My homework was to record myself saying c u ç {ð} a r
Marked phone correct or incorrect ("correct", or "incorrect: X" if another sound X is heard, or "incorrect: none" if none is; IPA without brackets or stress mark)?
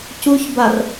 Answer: incorrect: b